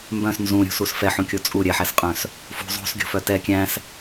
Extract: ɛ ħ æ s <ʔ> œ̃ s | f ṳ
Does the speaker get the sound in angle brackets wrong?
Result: yes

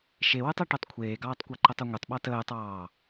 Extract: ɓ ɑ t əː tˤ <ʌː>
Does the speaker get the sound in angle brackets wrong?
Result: yes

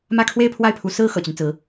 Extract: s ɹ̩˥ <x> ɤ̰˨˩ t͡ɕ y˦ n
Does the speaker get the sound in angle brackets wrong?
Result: no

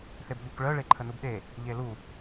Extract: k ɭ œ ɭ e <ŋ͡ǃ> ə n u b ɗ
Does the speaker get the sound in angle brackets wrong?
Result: yes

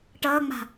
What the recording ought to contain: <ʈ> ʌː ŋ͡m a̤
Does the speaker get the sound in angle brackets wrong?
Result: no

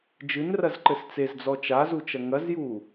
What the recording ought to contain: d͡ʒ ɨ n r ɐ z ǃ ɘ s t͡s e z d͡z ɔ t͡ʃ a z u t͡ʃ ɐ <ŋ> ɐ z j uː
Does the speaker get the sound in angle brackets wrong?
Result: no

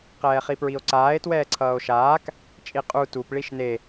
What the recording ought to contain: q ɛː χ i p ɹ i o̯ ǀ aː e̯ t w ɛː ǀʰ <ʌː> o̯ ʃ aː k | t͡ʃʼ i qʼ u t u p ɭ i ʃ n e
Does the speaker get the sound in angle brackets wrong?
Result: no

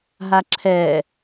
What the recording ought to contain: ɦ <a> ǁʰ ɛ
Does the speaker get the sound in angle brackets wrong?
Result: no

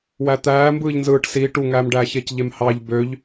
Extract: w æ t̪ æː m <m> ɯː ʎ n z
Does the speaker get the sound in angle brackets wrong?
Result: yes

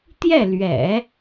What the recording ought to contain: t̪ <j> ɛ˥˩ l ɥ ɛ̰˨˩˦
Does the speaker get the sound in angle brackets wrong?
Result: no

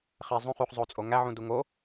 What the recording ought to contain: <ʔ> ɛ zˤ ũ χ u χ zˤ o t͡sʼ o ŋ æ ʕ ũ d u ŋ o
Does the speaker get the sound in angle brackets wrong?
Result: yes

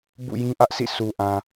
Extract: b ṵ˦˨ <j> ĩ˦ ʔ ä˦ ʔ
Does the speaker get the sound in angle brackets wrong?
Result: no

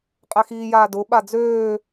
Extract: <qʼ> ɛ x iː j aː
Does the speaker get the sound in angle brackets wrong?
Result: no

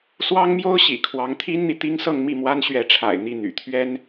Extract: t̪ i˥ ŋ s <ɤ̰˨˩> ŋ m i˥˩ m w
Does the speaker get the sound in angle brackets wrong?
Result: yes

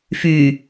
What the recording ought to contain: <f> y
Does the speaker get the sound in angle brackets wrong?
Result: no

